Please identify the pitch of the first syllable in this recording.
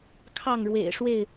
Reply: falling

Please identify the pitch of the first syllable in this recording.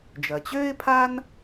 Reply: low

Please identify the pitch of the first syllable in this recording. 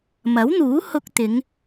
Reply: rising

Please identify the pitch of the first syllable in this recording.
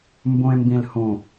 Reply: low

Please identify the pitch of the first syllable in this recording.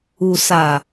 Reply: low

